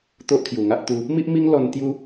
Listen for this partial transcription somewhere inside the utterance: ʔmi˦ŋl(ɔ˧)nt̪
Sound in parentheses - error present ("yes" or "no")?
no